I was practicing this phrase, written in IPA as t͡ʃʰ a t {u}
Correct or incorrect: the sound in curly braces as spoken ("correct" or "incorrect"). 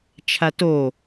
incorrect